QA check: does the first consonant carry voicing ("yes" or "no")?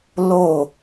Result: yes